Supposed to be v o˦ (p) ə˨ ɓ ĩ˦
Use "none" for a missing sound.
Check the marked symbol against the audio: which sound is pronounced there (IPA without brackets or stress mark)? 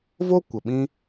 kʷ